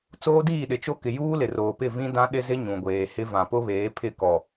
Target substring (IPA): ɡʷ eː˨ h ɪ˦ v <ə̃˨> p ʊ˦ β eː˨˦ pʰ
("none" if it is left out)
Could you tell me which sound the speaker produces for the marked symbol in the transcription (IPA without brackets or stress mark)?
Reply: ã˨